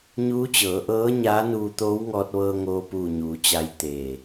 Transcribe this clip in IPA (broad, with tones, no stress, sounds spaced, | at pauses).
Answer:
ɲ uː˧˥ t͡ɕ ɤː˩˧ ʔ ɤː˧˥ ɲ aː˧˥ n uː˧ t̪ oː˧˥ w ŋ ɔː˧ t̚ ʋ ɤː˧ ŋ oː˧ p uː˧˩ ɲ uː˩˧ t͡ɕ a˧ j t̪ eː˧˩